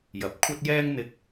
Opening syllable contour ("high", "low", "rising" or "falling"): low